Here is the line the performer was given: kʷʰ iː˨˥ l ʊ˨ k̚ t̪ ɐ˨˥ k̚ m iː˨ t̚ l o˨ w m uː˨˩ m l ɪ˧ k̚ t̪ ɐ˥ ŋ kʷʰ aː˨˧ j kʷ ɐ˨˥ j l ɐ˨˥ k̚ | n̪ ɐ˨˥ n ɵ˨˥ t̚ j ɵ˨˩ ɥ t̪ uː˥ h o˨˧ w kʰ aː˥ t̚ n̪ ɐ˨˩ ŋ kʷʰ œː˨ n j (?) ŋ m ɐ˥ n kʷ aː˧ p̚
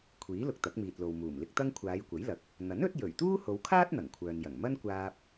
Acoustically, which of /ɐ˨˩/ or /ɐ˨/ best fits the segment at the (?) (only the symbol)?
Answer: ɐ˨˩